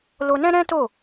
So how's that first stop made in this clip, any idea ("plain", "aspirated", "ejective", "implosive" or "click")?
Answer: plain